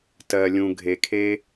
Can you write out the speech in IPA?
tɜ˨lʲũ˨ ɡʱe˨kʰe˧

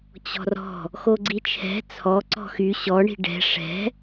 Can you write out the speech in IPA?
t͡ɕɔ̤rɔ̤ | xoɡ͡ǀit͡ʃʰɛ̤ t͡sʰɔ ǀɔ̤xy ɕɔ ɳi̤ɖɛ̤ ʂɛ̤

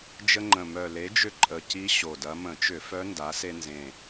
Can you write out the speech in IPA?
d͡ʒə˧ŋ͡ǃə̃˨˩ mœ˨˩ le˩˥d͡ʒʏ˧ ǃʼə˨˩ci˧˥ ɕo˨˩dɐ˧˥ mə̃˧˩˧t͡ʃʏ˧˩˧fœ˧˥ nda˩˥se˧nzẽ˨˩

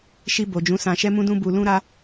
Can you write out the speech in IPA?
ʃi˧bo˨d͡ʒũ˨˦ sã˧ʃɛ˦mũ˦dũ˦ bu˧lũ˦ ɾa˦

